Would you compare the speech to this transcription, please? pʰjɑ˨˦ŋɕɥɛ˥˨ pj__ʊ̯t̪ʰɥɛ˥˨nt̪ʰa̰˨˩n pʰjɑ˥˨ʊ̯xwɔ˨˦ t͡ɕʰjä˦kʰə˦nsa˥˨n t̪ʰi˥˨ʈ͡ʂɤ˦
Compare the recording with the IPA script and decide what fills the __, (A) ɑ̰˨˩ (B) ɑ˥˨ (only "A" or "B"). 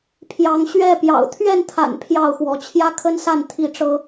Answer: A